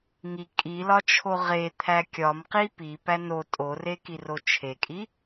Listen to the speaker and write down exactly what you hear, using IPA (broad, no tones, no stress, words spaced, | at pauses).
ŋi kʼilɒt͡ʃʰo ʁet̪ʰæ kʲɒmqi pipæ no tʼorekiro t͡ʃʰekʼi